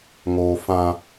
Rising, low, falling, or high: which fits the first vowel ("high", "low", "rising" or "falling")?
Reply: high